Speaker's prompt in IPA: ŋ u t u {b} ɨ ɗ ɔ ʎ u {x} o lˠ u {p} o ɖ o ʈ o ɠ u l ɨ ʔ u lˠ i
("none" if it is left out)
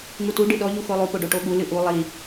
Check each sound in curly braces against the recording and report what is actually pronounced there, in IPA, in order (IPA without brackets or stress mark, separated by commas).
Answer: ɖ, x, p